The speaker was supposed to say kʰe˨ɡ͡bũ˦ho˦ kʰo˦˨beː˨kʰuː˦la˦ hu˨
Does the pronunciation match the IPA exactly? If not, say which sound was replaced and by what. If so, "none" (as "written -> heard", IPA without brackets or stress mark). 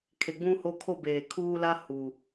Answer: none